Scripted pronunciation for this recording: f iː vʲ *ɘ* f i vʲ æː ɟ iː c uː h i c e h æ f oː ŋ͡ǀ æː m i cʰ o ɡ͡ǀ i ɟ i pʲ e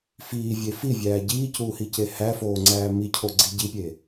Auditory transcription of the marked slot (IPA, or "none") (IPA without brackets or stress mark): e